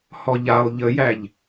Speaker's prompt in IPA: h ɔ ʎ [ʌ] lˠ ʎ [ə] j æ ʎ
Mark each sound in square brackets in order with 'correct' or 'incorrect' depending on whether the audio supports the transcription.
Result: incorrect: a, correct

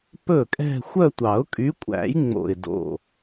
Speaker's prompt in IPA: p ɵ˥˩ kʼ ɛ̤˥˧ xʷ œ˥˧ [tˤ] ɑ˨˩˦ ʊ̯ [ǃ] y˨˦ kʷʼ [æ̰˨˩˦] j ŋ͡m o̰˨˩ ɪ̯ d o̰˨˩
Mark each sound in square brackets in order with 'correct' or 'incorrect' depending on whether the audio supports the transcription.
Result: incorrect: tʷ, incorrect: kʼ, correct

